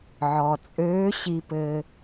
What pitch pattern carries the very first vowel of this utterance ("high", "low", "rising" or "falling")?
low